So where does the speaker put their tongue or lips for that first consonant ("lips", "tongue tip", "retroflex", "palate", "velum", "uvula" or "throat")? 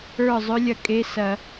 tongue tip